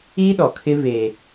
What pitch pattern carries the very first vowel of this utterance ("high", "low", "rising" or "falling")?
high